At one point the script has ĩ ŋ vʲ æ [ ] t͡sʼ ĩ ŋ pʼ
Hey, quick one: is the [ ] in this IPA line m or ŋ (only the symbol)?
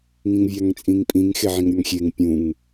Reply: ŋ